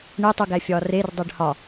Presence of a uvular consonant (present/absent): absent